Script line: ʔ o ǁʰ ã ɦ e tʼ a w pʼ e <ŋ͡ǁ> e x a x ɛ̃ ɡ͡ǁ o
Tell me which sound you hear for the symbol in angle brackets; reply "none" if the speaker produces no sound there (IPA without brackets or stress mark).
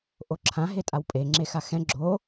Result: ŋ͡ǁ